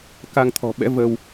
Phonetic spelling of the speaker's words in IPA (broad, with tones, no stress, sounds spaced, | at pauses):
k a˧ ŋ t̪ʰ ɔ̤˨˩ ɓ ɛ̰˧˥ v ə˧ w